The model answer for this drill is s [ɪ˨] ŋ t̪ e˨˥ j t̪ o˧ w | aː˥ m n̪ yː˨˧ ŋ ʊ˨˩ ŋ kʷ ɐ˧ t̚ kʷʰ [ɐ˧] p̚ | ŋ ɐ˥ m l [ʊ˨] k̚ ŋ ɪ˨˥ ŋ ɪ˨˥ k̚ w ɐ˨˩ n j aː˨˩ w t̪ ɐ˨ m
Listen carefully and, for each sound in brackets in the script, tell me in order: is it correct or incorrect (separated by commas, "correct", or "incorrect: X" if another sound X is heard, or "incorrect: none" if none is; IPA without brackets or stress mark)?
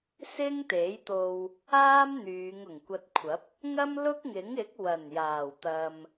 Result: incorrect: ɪ˥, incorrect: ɐ˨˥, incorrect: ʊ˥